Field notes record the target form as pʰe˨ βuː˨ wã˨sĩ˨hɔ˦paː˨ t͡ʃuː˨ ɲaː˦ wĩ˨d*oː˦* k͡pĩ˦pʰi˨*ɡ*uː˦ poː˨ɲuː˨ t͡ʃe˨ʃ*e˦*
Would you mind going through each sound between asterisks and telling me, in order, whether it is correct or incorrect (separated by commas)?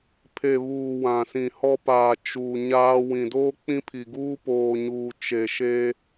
correct, correct, correct